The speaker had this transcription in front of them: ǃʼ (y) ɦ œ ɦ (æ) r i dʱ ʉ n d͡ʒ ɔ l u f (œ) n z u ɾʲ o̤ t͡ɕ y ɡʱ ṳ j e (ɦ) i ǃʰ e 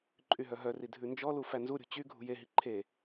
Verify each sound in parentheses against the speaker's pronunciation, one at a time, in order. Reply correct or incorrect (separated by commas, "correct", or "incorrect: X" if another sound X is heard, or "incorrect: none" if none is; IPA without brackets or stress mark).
correct, incorrect: œ, incorrect: æ, correct